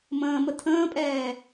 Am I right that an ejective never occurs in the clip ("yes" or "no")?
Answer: no